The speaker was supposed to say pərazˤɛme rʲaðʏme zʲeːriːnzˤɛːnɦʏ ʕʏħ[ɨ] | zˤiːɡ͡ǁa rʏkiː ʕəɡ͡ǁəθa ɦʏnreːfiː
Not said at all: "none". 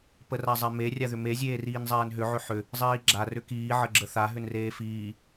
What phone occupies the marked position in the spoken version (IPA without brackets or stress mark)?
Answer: ʏ